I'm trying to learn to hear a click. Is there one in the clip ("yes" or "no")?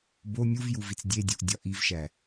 no